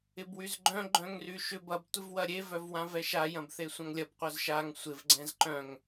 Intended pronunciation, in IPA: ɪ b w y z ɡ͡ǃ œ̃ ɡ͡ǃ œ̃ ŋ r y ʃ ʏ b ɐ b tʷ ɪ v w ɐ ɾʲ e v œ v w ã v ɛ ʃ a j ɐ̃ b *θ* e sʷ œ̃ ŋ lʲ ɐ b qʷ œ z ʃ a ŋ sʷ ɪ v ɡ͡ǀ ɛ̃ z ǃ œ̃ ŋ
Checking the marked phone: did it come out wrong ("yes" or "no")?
no